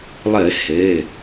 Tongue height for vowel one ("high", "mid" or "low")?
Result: mid